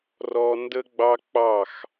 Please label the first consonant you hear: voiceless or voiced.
voiced